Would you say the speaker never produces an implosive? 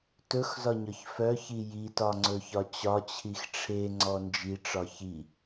yes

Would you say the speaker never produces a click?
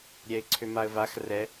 no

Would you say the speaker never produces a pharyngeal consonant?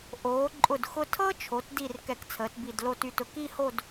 yes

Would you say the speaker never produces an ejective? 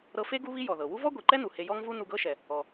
yes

